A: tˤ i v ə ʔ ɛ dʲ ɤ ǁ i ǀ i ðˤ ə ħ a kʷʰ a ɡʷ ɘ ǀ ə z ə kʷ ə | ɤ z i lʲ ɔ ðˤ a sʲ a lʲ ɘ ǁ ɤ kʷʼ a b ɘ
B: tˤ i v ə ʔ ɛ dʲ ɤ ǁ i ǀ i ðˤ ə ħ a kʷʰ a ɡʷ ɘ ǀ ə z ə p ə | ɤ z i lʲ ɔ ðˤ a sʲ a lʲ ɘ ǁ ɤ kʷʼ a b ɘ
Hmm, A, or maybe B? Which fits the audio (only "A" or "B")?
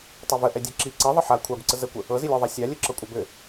A